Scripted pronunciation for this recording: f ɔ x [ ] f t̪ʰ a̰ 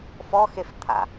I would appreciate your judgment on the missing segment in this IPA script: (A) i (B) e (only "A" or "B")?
B